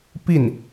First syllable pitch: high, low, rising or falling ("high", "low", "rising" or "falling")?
falling